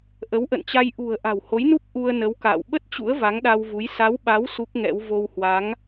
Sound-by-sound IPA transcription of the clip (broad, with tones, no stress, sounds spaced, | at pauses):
ʔ ə˨˦ w ʔ ə̰˧˨ n t͡ɕ a˧ j ʔ ṳ˨˩ ə̯ ʔ a̤˨˩ w h o˨˦ j n u˦˥ p̚ ʔ u˧ ə̯ n ə˨˦ w k a̰ː˧˨ w ɓ ə˦˥ t̚ t͡ɕ ṵ˧˥ ə̯ v a˨˦ ŋ ɗ a˧ w v u˨˦ j s a˨˦ w ɓ a˨˦ w s u˦˥ k̚ ŋ ɛ̰˧˥ w v o˧ w h w a˨˦ ŋ